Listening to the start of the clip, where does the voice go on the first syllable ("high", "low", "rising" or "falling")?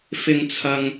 low